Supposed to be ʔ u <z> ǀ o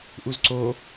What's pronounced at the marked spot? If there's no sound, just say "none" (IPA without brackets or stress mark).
z